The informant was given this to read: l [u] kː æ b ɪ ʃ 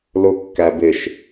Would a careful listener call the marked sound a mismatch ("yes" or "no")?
yes